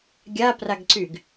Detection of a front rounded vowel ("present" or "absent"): present